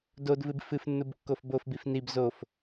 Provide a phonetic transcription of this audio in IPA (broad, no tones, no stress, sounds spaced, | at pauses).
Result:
d o d v ɨ b f ɨ f nː u b kː o f b o f b i f n i b z o f